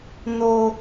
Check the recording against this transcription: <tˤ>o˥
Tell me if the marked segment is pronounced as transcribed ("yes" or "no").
no